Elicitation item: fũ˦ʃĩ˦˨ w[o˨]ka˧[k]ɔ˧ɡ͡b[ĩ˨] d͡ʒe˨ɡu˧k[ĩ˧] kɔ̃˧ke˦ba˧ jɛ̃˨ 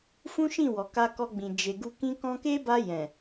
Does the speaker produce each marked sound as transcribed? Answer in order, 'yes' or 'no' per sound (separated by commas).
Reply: no, yes, yes, no